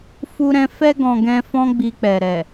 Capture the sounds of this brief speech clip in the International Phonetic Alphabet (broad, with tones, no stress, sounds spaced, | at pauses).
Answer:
f u˦ ɾ ɛ̃˦ f ɛ˧ ɡ ɔ̃˨ ɡ ɛ̃˧ f ɔ̃˦ ɡ͡b i˧ k͡p ɛ˨ ɾ ɛ˨